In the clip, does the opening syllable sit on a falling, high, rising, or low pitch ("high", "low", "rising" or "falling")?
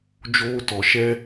high